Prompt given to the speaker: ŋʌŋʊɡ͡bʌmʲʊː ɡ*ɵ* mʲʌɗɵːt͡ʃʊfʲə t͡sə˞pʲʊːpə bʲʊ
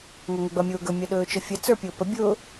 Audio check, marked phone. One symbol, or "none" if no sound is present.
ɵ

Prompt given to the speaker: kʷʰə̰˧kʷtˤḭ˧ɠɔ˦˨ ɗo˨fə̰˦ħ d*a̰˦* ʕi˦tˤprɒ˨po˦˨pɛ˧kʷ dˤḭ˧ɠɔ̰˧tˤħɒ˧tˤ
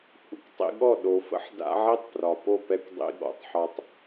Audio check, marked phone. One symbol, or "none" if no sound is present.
a̰˦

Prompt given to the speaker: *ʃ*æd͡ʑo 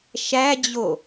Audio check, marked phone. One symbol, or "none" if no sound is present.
ʃ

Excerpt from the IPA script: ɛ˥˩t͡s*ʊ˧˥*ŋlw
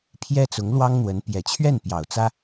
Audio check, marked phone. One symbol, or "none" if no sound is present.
ʊ˧˥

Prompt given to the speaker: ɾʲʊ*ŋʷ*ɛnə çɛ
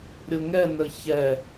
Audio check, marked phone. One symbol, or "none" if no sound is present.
ŋ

